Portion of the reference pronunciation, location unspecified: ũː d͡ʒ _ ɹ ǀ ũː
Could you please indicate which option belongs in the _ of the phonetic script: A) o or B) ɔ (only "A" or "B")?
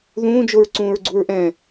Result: A